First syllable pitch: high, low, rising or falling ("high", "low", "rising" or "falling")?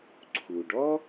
low